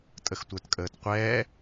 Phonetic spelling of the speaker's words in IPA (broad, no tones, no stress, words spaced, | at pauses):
tʼəxtʷə˞tkʼəːtqʷɛː